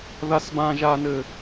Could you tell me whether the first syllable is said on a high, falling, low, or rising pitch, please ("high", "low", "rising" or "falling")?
high